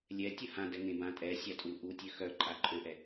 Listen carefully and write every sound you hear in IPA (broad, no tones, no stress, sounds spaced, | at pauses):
lʲ ɛ tʲ ə h ã d ɛ ŋ ẽ b ã tʼ ɛ sʲ a tʼ u ʔ u tʲ ø x œ ǃʼ a ǃʼ ø ʔ ɛ